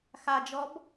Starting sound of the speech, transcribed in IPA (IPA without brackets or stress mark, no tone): x